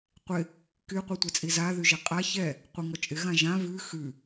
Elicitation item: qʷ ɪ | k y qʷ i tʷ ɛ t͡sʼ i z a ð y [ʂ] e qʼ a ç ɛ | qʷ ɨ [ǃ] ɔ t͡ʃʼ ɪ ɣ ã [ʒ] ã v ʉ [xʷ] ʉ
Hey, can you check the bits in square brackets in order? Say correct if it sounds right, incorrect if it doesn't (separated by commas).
incorrect, incorrect, correct, incorrect